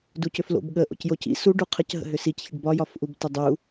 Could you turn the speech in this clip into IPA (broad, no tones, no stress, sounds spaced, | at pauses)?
d u c ʏ f l o̰ b ɠ ə ʔ o̰ c j o c ḭ s u ɖ u qʰ ə c ɦ ə̰ ɦ ʏ s i c ç ə ɖ b ɒ j ɒ f ʔ u b t ʏ dˤ u